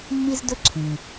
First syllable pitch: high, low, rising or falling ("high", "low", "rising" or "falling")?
high